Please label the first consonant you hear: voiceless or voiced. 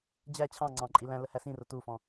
voiced